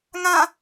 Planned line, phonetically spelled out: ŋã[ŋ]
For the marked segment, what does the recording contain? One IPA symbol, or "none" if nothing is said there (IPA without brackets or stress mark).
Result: none